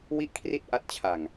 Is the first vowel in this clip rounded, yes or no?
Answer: no